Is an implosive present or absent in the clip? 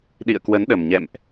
present